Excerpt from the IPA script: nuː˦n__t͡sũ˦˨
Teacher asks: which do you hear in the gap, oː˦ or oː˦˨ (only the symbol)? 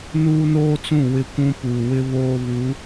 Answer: oː˦